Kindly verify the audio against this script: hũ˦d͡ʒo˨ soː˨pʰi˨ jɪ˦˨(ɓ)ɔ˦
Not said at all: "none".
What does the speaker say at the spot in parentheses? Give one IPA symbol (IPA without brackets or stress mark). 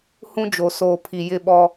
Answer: ɓ